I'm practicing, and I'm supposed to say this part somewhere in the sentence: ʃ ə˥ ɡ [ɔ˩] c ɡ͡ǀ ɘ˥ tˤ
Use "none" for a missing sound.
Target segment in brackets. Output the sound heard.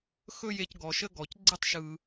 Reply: ɔ˩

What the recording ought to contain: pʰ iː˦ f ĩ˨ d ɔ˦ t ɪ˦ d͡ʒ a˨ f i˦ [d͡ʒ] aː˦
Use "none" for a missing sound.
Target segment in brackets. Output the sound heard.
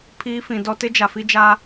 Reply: d͡ʒ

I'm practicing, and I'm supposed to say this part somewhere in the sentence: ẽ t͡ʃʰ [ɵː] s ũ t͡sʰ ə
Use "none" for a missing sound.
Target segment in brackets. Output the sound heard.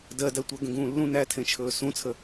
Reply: ɵː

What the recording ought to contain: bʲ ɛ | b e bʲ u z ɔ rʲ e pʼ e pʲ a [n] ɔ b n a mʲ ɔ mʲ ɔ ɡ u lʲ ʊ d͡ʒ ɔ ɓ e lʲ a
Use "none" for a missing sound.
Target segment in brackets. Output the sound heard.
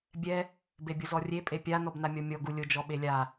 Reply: n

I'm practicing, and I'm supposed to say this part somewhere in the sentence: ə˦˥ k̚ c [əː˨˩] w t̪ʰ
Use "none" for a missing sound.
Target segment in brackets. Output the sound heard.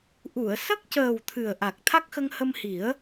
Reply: əː˨˩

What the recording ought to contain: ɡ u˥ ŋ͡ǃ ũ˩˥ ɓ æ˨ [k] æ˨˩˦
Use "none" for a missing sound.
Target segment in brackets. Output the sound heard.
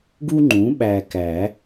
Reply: k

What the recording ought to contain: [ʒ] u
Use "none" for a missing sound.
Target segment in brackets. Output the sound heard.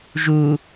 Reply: ʒ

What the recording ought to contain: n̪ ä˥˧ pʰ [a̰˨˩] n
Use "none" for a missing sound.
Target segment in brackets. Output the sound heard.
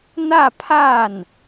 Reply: a˥˩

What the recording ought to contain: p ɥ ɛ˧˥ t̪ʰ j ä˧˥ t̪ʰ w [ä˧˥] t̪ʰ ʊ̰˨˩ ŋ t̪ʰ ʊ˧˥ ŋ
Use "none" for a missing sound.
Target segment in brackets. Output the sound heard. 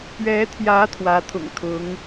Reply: ä˧˥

